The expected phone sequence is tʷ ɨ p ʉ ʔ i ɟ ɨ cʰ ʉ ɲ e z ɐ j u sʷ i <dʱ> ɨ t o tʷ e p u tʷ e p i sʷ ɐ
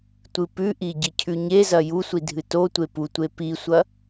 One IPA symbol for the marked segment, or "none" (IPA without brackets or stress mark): dʱ